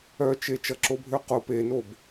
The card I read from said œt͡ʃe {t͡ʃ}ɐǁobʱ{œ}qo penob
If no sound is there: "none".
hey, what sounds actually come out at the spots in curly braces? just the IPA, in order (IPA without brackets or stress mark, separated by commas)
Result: t͡ʃ, ø